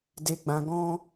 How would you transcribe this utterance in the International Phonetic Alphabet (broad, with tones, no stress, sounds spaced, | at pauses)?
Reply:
d e˨ ɡ͡b ã˨ ɡ ɔ̃˧